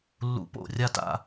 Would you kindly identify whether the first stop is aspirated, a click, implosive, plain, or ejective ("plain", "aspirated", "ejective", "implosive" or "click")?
plain